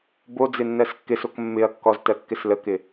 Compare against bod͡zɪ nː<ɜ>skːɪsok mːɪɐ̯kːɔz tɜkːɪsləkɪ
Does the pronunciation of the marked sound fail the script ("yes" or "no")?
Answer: no